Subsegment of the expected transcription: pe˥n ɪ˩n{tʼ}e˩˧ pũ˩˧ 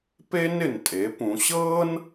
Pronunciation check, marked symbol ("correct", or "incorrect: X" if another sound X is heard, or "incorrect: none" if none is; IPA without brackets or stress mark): correct